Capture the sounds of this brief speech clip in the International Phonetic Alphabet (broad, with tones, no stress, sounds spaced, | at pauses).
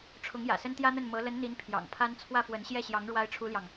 ʈ͡ʂʰ ʊ˧˥ ŋ j ä̰˨˩ s ə˥ n t̪ j ä˥ n̪ ə˥˩ n m ɤ˧˥ l ə˧˥ n n̪ i˧˥ n pʰ j ɑ̰˨˩ ŋ pʰ a˥ n t͡sʰ w ä˥˩ f w ə˧˥ n ɕ j ɛ˥˩ ɕ j ɑ˧˥ ŋ ɻ w a˥ ɪ̯ ʈ͡ʂʰ u˥ l j ɑ˨ ŋ